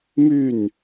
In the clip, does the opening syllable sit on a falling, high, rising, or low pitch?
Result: falling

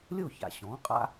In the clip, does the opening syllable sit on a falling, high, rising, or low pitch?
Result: falling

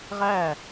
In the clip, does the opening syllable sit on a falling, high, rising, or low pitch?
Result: falling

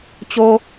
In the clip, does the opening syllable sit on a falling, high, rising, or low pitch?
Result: high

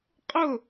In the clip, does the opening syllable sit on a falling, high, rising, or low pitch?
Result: falling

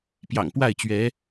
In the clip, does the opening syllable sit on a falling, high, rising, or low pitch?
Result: low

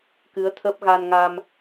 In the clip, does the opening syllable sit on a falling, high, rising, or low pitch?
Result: rising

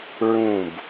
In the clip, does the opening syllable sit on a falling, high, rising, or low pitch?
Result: falling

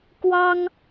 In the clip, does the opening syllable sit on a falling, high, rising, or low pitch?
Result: high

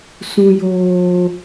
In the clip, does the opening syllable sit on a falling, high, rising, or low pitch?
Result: low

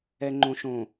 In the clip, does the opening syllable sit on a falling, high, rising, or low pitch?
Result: low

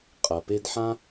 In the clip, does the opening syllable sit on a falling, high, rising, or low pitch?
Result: low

